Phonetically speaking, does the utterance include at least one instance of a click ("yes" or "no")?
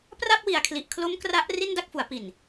no